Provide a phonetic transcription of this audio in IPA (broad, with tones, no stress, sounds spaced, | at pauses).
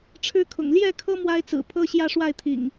ʈ͡ʂʰ ɻ̩˦ kʰ ʊ̰˨˩ ŋ l j ɛ˥˨ kʰ ɤ˦ m w a˦ ɪ̯ t͡s ɹ̩˨˩ pʰ ɤ˦ ɕ j ä˦ ʂ w a˥˨ ɪ̯ t̪ʰ ḭ˨˩ ŋ